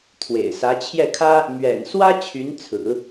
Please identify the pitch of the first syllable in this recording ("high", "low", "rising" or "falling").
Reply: low